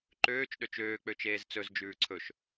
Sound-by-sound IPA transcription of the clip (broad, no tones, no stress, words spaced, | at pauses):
ǃøːt͡ʃ ɗøt͡ʃøː k͡pøt͡ʃeːzt͡sɵz d͡ʒʉːǀʰɵʃ